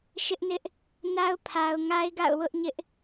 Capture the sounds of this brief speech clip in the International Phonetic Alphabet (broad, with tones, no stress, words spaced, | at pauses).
ʃɪ˦ʔnɪ˦ʔ | na˦ʊ̯pʰa˨ʊ̯ ŋa˦ɪ̯ɡa̰˦˨ʊ̯ wʊ˦ʔɲɪ˦ʔ